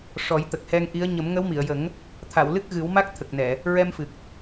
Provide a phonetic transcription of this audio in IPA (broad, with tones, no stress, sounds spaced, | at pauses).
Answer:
ʂ ɔ˨˩˦ j t̪ ə˨˩ k̚ h ɛ˧ ŋ ʔ i˧˥ ə̯ ɲ ə˨˩˦ m ŋ ə˧˥ w m i˨˩˨ ə̯ j ə˨˩˦ ŋ | t̪ʰ a˨˩˨ w l ɨ˦˥ k̚ ɣ ɨ˨˩˦ w m a˦˥ k̚ t̪ʰ ə˨˩ k̚ n ɛ˨˩˨ | ɹ ɛ˧ m f ɨ˨˩ k̚